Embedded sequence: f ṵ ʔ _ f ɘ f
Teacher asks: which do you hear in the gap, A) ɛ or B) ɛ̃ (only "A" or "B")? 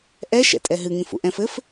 B